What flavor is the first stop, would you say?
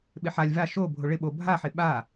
implosive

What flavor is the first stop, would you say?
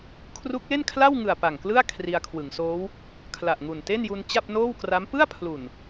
aspirated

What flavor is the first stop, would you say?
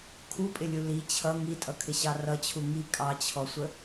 aspirated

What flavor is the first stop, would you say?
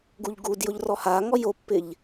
plain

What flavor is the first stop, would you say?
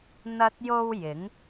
plain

